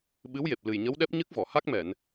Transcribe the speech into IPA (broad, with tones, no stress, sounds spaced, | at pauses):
ɓ ɨ˧˥ w j e˨˩ p̚ l ɨ˨˩ j ɲ ə˧˥ w ɗ ɛ˦˥ p̚ ɲ ɨ˦˥ k̚ v ɔ˨˩˨ h a˦˥ k̚ m ɛ˨˩˨ n